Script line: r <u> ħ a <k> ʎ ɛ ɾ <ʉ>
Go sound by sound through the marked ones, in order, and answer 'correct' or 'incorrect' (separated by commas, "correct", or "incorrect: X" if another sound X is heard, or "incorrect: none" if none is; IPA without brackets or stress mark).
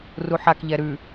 correct, correct, correct